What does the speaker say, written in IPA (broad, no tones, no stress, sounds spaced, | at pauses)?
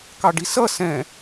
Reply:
k ɑ ɖ i s ʌ s ɛ̃